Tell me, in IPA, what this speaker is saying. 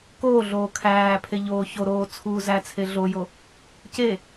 koːɮoː kʰæːpʰe ʎoːçoɾoː t͡sʰuːzæt͡sʰe ɮojo | ce

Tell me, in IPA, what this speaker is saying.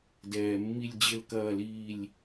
dɛː˨mːi˦˨lʲd͡ʑɘ˦˨l kɐː˦˨liː˦˨lʲ

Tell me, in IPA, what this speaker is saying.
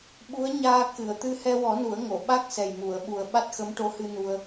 ɓu˧˥ə̯ ɲaː˧kɨ˨˩˨ə̯ t̪ɨ˧hɛ˧wɔ˨˩˦ nu˨˩˦ə̯ ŋo˨˩˨ ɓa˦˥k̚ sɛ˨˩jmu˨˩˨ə̯ɓu˨˩ə̯ ɓa˦˥t̚xə˧˥mʈo˧˥hɨ˧ nu˧ə̯

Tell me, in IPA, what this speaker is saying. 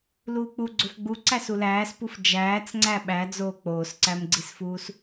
luːk͡pu ɡ͡ǀofɡ͡bu ǀæsulæːspuf d͡ʒæːt͡sŋ͡ǀæ ɓæd͡zoː k͡poːsǀæmɡ͡ǀisfuːs

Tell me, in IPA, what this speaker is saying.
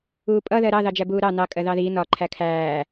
uːpʼʌ ðɜɾɑ ðɑd͡ʒæbuːɾɑ nɑ kʼɜðɑði nɒ ǃʰækʰæː

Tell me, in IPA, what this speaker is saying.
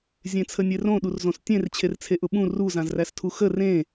zʲẽt͡sʰənʲerõ ɗurzõstʲẽr t͡ɕʰert͡sʰeʔʊɓũ ru zãzræstʰuxə rẽ

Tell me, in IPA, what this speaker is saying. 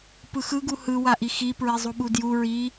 pɯxɯ ɡuhɯ waʔixi pɹizˤuɓudju ɹi

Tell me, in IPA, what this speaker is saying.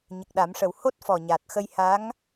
ɲə˨˩k̚ɗa˨˩˦mʂə˨˩w ho˦˥t̚ fɔ˨˩ɲa˨˩t̚xə˧jha˧˥ŋ

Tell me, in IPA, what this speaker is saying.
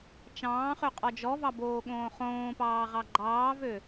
t͡ʃɑ̃ːχø qʼɔd͡ʒɔvɑ boːɠõːχõːpɑː ʁɑɡ͡ǃɑːvø

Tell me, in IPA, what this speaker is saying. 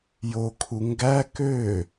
jokʰu ŋɡæ kø

